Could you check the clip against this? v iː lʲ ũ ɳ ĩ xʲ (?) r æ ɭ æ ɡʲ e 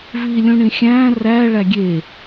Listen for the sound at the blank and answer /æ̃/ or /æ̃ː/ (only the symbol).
æ̃ː